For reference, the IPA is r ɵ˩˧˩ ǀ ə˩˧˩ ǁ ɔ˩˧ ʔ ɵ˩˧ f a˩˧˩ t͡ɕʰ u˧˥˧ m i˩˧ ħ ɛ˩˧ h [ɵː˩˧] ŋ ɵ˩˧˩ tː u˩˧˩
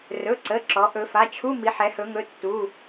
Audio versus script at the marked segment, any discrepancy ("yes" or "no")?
yes